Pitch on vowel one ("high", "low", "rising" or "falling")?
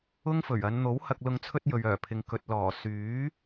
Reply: high